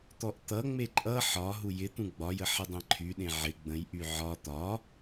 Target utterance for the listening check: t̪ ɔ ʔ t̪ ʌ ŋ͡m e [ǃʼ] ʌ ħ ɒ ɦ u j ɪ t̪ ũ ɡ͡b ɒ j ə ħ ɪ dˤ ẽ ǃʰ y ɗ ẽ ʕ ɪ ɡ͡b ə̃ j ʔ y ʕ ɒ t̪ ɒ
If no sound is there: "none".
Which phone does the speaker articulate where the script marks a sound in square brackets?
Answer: ǃʼ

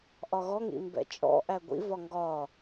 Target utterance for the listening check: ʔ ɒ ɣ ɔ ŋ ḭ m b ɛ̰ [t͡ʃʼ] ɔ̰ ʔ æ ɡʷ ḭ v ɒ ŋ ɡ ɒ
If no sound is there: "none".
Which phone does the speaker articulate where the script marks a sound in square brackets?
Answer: t͡ʃʼ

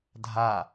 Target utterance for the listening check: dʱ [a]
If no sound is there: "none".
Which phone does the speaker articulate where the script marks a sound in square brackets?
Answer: a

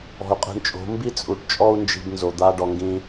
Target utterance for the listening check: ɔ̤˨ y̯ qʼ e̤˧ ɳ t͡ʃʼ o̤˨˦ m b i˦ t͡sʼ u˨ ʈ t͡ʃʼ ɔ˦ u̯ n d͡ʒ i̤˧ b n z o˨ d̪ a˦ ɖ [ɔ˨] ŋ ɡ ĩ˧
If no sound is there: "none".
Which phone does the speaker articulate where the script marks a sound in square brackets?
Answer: ɔ˧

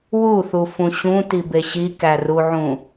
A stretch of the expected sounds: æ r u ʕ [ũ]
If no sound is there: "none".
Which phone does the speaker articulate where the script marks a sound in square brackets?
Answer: ũ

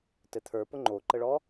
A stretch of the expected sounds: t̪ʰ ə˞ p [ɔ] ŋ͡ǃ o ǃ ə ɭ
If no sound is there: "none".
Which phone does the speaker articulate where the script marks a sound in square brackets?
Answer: ʊ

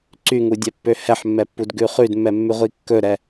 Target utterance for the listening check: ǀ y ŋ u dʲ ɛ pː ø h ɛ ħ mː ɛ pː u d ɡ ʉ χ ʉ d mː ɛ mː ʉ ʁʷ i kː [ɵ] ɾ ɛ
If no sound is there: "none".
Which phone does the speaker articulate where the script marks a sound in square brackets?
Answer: ɵ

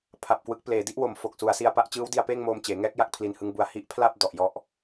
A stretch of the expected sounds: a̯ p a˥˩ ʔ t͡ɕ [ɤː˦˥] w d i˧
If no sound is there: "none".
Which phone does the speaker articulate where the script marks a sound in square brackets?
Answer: ɯː˦˥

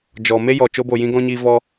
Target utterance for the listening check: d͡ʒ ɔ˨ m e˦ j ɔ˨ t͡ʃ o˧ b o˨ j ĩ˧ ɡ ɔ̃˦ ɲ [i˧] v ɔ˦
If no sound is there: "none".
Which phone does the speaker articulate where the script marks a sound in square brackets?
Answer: i˧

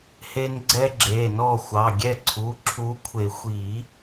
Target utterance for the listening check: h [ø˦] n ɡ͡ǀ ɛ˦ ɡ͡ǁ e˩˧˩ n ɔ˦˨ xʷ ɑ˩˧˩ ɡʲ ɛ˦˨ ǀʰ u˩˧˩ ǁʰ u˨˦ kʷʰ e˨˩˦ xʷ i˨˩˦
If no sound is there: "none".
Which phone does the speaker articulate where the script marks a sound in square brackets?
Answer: e˦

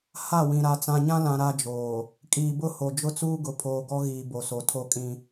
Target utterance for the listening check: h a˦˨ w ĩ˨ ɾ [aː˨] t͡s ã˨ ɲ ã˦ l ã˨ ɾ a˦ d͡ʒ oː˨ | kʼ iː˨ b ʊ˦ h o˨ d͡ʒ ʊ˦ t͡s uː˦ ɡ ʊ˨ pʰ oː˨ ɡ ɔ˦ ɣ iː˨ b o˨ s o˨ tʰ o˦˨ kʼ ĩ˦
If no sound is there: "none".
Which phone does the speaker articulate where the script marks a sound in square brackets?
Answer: a˨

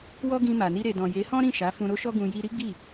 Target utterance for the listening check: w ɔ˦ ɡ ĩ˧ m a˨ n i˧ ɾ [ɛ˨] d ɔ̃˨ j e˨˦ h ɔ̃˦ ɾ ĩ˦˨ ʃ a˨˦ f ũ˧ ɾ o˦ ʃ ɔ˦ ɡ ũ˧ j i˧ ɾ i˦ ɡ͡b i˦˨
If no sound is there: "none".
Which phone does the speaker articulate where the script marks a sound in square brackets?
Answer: e˨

